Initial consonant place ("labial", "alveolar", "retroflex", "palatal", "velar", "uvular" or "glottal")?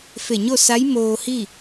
labial